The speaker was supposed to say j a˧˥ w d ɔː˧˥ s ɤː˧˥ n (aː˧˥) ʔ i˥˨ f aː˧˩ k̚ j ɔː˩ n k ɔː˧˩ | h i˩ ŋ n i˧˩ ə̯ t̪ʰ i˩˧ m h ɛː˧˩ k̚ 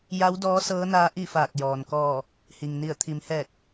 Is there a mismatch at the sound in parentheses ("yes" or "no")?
no